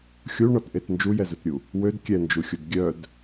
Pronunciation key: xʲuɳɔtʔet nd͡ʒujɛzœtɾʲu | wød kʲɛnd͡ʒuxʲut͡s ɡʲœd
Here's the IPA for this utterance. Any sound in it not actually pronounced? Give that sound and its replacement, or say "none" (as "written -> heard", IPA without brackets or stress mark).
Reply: t͡s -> d